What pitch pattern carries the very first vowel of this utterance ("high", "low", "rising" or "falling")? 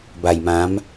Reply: low